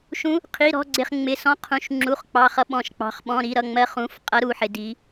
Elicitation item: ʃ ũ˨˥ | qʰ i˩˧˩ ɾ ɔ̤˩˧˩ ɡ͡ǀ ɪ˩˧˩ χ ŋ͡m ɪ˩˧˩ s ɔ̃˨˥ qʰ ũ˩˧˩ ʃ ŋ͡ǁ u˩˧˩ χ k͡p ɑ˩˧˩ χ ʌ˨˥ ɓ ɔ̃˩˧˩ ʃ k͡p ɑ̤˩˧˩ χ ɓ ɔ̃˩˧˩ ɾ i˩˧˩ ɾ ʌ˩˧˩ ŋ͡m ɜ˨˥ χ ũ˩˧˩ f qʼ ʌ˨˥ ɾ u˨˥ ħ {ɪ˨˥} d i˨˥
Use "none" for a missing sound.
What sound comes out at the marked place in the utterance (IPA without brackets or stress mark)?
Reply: ɪ˨˥